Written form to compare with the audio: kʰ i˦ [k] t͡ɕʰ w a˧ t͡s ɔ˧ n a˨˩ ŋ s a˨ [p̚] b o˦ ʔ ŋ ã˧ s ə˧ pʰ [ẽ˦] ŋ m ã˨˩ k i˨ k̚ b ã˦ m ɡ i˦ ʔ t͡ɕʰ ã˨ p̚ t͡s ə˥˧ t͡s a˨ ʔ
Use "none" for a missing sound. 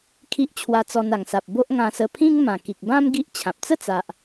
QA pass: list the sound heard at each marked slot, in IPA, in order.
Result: ʔ, p̚, ĩ˦

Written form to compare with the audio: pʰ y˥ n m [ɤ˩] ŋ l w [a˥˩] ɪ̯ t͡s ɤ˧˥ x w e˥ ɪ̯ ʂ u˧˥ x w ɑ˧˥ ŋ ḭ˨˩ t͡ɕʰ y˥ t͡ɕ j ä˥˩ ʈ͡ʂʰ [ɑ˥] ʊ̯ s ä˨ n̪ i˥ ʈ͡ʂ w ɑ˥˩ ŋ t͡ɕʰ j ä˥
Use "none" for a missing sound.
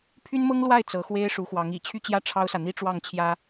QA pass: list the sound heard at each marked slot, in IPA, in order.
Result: ɤ˥, a˥˩, ɑ˥

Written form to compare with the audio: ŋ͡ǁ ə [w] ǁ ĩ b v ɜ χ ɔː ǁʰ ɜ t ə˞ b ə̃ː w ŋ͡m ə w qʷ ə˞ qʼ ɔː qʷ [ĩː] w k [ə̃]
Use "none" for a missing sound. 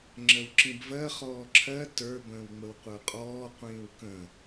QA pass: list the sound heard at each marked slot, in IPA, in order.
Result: w, ĩː, ə̃

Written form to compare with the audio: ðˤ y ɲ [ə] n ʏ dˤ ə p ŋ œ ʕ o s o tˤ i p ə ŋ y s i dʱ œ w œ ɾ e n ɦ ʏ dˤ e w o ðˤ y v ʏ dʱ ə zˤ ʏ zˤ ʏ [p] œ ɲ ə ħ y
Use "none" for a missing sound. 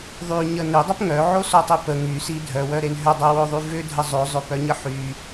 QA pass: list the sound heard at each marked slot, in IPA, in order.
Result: ə, p

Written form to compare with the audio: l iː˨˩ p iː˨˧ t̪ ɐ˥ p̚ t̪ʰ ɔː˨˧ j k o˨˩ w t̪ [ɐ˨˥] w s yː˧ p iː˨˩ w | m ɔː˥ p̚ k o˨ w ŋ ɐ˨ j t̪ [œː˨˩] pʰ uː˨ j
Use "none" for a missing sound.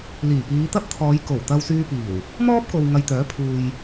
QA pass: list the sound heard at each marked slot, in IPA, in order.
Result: ɐ˧, œː˨˥

